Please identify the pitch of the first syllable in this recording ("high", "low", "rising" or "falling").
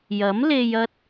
rising